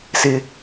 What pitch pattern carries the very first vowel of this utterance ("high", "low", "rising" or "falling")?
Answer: high